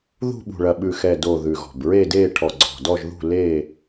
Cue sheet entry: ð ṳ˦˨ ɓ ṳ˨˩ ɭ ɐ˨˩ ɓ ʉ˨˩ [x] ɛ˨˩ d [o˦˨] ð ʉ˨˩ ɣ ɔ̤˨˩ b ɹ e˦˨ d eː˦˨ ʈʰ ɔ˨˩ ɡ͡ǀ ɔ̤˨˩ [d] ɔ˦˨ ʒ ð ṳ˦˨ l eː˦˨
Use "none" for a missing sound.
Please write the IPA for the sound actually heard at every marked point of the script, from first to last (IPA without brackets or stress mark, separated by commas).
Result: x, o˨˩, d